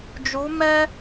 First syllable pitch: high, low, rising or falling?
rising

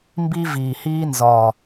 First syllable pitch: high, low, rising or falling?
high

